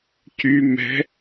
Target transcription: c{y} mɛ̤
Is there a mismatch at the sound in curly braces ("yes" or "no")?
no